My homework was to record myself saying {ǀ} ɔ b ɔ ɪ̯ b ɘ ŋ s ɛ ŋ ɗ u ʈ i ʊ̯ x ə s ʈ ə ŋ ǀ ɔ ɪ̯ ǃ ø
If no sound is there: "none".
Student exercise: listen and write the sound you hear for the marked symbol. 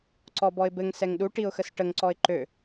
ǀ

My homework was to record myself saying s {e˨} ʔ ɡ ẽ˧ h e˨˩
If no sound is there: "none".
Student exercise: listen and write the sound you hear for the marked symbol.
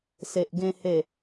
e˨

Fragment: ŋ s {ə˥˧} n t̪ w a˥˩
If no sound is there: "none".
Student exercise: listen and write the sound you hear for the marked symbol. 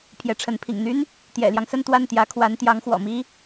ə˥˧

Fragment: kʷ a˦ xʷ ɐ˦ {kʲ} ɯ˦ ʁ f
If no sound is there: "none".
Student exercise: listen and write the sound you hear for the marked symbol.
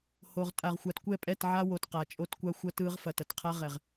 t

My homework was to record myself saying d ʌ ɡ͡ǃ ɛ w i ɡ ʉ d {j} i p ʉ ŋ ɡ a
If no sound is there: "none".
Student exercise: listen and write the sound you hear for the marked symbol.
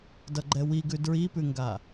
ɹ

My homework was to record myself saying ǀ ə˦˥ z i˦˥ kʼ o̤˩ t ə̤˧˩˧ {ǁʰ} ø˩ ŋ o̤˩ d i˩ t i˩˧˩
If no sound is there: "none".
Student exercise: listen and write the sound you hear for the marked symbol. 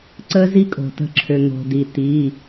ǁʰ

